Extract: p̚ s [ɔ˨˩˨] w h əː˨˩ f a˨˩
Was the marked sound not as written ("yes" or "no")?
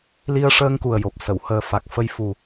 yes